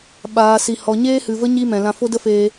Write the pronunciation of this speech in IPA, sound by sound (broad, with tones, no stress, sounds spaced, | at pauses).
ɓ aː˨ s i˨ h ɔ˨ ɲ eː˦ h ɨ˨ v ə˦ ɲ i˦ m ɛ̃˨ l ã˧ f o˦ d ə˦ f eː˧